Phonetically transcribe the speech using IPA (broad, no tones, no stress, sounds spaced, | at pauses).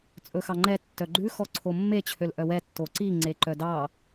t͡sʼ ɵ x ɑ ŋ͡ǃ ɛ tː œ ɡ͡ǃ ʉ x ɔ ǀʰ o mː e t͡ɕʰ ø l ʔ œ w ɛ tː o ǀ i ŋ͡ǀ e ǃ œ d ɑ